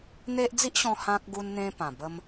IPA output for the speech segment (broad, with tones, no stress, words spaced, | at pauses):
n̪e˦ʔ d͡zi˦ʔɕɔ̃˧ hã˦k̚ ɡu˦nn̪ẽ˦pã˨˩ bə˧m